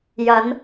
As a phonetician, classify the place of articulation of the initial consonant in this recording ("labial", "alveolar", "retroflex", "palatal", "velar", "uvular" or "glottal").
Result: palatal